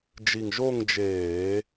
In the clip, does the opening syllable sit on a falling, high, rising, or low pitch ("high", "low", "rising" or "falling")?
low